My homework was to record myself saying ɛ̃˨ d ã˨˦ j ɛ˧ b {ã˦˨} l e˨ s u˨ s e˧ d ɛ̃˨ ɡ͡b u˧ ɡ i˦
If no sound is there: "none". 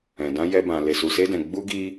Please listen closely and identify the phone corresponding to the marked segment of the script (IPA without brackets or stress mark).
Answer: ã˨